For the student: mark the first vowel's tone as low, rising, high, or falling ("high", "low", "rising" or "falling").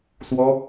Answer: high